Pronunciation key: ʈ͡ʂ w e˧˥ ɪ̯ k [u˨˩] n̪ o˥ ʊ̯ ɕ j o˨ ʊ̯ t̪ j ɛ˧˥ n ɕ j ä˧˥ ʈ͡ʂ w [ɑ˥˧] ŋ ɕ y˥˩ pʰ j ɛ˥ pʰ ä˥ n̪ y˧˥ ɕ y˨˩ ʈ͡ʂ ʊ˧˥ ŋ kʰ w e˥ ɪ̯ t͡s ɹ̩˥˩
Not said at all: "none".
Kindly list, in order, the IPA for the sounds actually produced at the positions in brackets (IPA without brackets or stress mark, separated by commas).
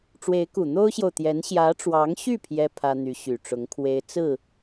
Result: u˨˩, ɑ˧˥